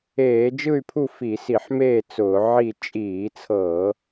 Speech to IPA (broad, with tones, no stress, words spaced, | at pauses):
eː˧˩˧d͡ʒɯ˥˨y̯pʰu˥˨ fi˧˩˧si˧˩˧ħmeː˥˨ t͡sʊː˧˩˧ ʕi˥˨ t͡ʃʼiː˧˩˧t͡sʰɤ˧˩˧